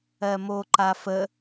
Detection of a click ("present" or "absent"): present